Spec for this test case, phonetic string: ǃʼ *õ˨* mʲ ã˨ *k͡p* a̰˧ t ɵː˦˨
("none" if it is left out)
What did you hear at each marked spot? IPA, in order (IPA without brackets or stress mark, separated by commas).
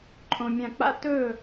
õ˨, k͡p